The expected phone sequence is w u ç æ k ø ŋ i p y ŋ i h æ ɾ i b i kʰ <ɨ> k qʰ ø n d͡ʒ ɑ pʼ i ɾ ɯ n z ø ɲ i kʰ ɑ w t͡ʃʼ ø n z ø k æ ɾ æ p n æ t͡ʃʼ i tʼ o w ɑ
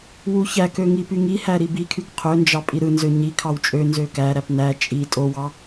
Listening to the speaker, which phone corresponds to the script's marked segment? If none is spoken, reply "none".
y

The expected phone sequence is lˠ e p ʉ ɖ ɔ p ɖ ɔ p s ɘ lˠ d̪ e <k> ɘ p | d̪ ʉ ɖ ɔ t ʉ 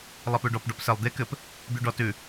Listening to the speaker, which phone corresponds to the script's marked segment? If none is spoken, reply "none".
k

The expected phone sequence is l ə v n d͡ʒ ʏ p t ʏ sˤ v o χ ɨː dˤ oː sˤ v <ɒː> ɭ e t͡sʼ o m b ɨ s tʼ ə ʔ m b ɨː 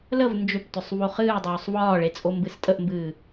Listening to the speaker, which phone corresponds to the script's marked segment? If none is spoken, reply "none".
ɒː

